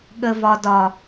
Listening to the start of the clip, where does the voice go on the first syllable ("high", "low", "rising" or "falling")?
low